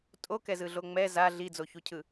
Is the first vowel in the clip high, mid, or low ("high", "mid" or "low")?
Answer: mid